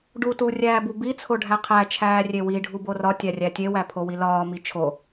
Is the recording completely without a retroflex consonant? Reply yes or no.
no